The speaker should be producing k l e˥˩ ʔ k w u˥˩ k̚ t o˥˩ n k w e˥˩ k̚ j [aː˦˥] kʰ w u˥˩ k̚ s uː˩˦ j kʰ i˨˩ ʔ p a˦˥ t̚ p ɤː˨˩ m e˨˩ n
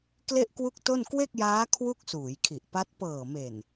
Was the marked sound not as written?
no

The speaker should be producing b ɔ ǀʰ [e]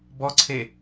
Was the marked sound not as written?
no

